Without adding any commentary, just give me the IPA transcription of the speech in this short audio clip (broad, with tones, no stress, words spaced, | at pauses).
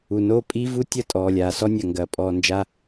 u˨noː˦pʼiː˦vu˦ tʲɐ˦˨tʼɔː˨lʲaː˨sɔ˦ nʲɐ˨ŋɡɐː˨ pʼɔː˨nd͡ʒa˦